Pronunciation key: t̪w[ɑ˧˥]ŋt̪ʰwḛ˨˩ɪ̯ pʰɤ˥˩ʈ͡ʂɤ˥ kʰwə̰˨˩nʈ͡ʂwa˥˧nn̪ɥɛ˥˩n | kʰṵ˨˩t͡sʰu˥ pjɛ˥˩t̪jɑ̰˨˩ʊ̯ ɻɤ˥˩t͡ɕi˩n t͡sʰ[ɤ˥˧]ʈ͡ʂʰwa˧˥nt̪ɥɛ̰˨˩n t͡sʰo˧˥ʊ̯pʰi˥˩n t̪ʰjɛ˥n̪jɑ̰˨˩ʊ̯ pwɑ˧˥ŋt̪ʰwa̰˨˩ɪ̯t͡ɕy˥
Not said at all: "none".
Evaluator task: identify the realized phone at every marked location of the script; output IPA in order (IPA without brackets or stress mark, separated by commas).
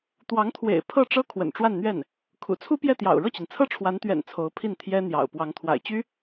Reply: ɑ˧˥, ɤ˥